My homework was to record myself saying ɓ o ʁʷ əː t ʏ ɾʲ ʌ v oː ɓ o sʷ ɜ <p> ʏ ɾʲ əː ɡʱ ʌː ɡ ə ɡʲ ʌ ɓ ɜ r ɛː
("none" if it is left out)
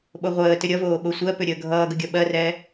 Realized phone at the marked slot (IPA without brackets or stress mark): p